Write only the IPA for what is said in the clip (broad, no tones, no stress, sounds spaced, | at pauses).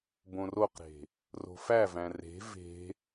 b õ r o q ɾ e̤ | r o̤ f æ v æ̃ r e̤ v e̤